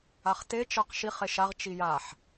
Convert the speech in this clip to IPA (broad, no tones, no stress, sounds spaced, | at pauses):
a χ t e t͡ʃ ɜ q ʃ i χ e ʃ a ʁ t͡ʃ i j a ħ